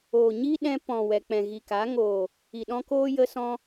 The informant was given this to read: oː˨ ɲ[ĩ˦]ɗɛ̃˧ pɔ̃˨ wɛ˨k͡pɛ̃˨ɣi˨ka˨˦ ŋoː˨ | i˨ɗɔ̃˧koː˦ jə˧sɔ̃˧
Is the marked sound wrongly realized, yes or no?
yes